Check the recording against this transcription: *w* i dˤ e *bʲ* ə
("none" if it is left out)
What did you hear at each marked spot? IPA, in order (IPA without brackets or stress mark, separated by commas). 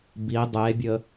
b, bʲ